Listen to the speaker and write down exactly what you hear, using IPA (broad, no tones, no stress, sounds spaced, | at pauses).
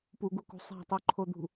p u ɡ u k ṳ sˤ æ̤ tˤ u ǃʰ o d̪ ṳ